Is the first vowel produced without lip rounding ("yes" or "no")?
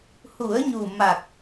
no